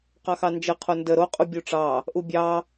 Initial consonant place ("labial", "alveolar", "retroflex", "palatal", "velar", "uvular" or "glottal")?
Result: uvular